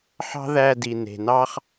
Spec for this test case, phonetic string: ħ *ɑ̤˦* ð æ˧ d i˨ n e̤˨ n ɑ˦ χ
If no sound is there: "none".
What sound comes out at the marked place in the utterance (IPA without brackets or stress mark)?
ɑ̤˦